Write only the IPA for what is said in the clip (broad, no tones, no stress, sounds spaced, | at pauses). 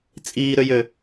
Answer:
t͡sʼ iː ɾ ø j ø